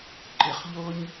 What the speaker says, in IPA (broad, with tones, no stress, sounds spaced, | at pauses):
ǃ ɪ˧ χ ʎ o˥ ɲ